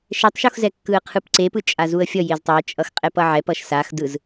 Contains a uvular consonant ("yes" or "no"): yes